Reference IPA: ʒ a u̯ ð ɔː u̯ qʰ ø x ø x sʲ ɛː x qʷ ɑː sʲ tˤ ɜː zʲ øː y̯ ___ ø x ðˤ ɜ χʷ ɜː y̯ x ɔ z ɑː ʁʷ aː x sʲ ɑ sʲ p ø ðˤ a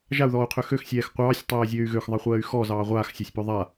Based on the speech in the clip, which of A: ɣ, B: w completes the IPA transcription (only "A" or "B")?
A